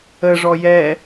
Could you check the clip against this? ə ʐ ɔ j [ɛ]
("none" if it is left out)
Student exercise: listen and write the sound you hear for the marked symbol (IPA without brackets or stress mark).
ɛ